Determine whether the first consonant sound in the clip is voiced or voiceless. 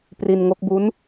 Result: voiceless